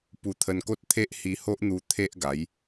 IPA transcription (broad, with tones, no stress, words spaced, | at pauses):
pu˧t̪ʰə˧nko˦t̚t̪ʰe˦ʔ hi˧ho˦ʔn̪u˧ t̪ʰe˦ʔɡa˨˦j